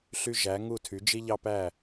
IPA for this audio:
ɬy˧ʒæ˩˧ ŋu˧˩tʰy˩˧ d͡ʒi˧ʎɑ˧pæ˧˩

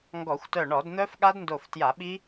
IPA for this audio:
ŋɡɔ˧˩˧xʷtœ˧˩ɳɔ˧˩˧dn̪œ˦˥f ɠa˦˥dndo˧˩ftja˧˩˧ɓi˦˥

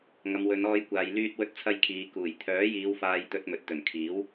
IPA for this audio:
ŋɐ˨˧mwɵ˨˧nɔː˧j kʷaː˨j lyː˧t̚wɵ˧t̚t͡sʰɐ˧jkʰiː˨ kuː˨˩jt̪ʰœː˨˥jiː˨˧w faː˧jt̪ɵ˧t̚mɵ˨t̚ t̪ɵ˨˩nkʰiː˨˥w

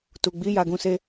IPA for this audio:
tu˨ɡ͡bi˨˦ ja˧ɡũ˧se˦

